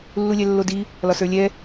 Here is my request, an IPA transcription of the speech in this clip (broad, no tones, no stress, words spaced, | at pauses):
lːulʲɛlːodi | lɒsə˞lʲɛ